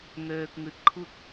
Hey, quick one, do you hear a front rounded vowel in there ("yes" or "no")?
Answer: yes